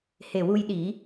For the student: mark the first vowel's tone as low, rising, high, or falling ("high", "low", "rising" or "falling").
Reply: low